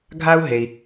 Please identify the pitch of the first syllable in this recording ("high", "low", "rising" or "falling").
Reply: high